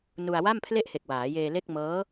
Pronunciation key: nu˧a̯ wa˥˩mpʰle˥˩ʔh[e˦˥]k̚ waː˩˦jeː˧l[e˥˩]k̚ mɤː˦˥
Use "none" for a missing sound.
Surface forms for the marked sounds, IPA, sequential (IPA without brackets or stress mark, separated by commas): e˨˩, e˥˩